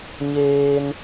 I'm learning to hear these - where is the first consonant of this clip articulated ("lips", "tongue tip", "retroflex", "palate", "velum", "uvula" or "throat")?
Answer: palate